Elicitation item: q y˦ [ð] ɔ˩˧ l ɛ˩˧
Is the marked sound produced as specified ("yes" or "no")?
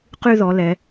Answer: yes